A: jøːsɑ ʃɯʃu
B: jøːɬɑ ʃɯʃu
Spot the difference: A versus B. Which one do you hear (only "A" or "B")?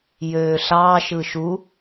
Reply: B